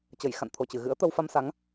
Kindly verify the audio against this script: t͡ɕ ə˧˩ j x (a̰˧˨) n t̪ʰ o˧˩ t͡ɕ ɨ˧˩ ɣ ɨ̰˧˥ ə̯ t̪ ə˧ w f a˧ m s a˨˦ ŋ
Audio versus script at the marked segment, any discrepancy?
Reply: no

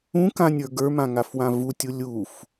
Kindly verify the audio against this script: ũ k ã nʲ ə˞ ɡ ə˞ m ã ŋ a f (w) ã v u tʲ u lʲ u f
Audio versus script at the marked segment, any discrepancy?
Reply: no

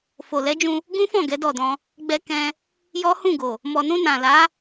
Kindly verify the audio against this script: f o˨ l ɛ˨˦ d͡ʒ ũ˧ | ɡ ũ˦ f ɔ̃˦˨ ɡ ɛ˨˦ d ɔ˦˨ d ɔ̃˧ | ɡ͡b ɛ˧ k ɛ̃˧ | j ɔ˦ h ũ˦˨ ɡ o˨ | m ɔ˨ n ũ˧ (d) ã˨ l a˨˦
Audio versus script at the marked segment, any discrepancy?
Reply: yes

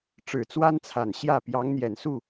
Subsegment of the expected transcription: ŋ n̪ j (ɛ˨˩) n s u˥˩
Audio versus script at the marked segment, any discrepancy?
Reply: no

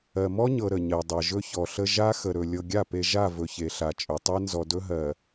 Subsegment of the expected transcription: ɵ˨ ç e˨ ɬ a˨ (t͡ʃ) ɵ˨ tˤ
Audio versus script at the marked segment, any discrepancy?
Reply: yes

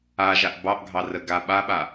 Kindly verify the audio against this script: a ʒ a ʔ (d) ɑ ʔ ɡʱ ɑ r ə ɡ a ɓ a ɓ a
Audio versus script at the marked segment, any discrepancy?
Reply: yes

